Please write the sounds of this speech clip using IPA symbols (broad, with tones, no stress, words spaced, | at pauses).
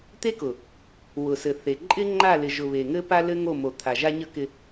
t̪e˦kʊ˨ | wʊ˨sɘ˨θe˨ ǃʼɪ˦ŋ͡ǃa˦˨lɪ˨ʒʊ˨ βe˨ŋɘ˦ pa˦lɘ˦ŋo˦˨ mo˨t̪ʰa˨ʒa˦ɲə˦ kɪ˦